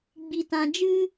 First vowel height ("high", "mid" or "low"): high